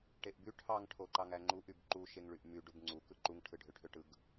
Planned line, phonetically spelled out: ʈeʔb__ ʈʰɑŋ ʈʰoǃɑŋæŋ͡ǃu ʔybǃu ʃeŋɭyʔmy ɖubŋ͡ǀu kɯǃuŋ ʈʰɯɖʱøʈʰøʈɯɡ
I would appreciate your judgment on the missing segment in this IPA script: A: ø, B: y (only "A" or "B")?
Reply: B